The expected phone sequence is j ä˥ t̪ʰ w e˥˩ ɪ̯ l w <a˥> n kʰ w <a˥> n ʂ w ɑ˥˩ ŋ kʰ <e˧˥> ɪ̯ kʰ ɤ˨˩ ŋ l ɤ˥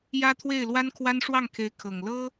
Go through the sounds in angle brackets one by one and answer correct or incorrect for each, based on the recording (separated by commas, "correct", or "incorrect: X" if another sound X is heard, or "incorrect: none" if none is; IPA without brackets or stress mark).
correct, correct, correct